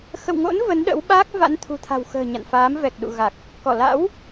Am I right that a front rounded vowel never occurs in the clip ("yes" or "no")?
yes